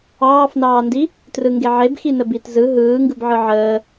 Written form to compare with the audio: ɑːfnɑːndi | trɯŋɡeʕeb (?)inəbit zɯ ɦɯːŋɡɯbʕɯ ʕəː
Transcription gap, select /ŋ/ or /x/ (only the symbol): x